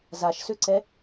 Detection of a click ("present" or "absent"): present